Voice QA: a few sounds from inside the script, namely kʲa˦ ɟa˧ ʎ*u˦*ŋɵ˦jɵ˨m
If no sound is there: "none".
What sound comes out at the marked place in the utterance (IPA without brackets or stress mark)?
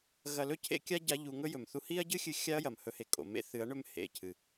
u˧